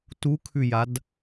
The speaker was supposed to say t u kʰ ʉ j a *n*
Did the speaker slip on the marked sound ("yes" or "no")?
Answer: yes